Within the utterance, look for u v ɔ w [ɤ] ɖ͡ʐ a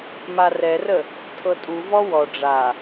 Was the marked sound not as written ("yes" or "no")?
yes